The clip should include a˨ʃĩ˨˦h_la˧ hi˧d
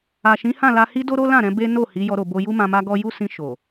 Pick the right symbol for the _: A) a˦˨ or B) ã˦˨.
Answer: B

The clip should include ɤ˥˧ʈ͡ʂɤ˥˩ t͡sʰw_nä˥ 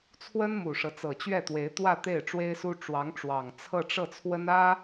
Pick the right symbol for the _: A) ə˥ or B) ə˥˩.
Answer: A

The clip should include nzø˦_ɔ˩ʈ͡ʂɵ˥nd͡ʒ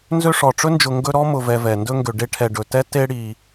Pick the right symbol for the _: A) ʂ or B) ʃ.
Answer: A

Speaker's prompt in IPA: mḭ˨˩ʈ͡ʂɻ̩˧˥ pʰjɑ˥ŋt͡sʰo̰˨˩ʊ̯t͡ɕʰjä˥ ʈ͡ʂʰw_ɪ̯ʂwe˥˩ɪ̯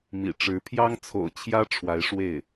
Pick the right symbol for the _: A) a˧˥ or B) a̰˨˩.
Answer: A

